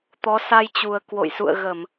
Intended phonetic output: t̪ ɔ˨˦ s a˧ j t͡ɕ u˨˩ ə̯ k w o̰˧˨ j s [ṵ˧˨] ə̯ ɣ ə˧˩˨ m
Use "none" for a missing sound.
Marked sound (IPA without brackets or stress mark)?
ṵ˧˨